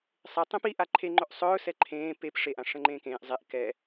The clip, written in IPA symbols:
sˤ e tˤ ẽ p i ʔ a ǃʰ e ŋ͡ǃ ɵ ʔ sˤ ɵː s ɛ ǃʰ ẽː p e p ʂ e ʔ ã ʂ ɛ̃ ŋ͡ǃ ẽː k ẽː ʔ zˤ e ʔ k ɛ

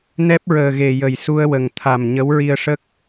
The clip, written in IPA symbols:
n ɛ˦˥ p̚ ɹ əː˨˩ ɣ e˨˩ j ə˨˩ j s u˧ ə̯ w ə˨˩ ŋ t̪ʰ a˨˩ m ɲ ə˧˥ w ɹ i˧ ə̯ ʂ ə˦˥ k̚

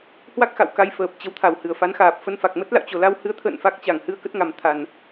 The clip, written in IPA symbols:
h w a˦˥ k̚ x a̰˧˨ w k a˧ j f əː˨˩ p̚ t͡ɕ ə˨˦ w t̪ʰ a˧˩ w h ɨ˧˩ ə̯ f a˨˦ n x aː˨˩ p̚ f ə˧ n f a˨˩ k̚ m ə˦˥ t̚ l a̰˧˨ w t͡ɕ o˨˩ l a˧ w h ɨ˨˦ ə̯ t̪ʰ ə̰ː˧˨ n f a˦˥ k̚ t͡ɕ a˧˩ ŋ h ɨ˧ ə̯ k ə˦˥ t̚ ŋ a˨˩ m t̪ʰ a˨˩ n

